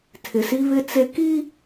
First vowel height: high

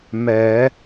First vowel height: mid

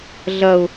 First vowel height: low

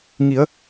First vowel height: high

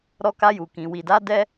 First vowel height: mid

